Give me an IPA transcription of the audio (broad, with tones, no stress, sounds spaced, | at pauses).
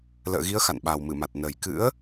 l ə̰ː˧˨ ɣ i˨˦ ə̯ x a̰˧˨ n ɓ a˨˩ w m ɨ˧˩ m a˨˩ t̚ n ə˨˩ j k ɨ̰˧˥ ə̯